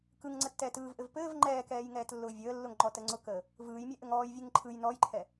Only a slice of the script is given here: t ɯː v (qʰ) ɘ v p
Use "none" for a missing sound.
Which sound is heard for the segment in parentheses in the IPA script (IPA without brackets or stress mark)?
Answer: ʔ